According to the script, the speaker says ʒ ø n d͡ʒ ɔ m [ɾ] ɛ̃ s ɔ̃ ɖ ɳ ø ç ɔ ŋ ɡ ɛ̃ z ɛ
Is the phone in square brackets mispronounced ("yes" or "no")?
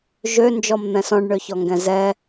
yes